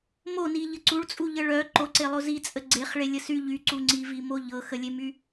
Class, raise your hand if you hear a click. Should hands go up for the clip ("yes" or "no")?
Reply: yes